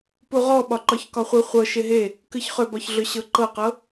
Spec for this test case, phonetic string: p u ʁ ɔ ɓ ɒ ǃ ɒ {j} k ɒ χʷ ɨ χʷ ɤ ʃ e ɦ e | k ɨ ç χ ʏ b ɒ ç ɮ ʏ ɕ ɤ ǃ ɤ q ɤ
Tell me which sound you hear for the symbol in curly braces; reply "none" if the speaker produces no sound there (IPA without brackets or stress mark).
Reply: ç